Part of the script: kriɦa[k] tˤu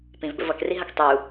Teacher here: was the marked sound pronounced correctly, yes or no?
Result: yes